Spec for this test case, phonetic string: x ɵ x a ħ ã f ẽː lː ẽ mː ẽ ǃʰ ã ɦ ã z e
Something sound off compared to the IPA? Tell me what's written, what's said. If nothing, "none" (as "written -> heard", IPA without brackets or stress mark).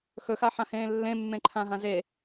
f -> h